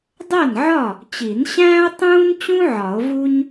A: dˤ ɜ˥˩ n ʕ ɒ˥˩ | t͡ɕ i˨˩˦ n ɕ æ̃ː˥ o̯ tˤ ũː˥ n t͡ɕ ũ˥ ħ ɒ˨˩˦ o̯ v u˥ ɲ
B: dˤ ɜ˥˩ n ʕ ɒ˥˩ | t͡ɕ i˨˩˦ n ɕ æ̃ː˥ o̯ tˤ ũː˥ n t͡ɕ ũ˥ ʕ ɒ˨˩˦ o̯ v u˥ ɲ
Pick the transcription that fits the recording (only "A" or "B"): B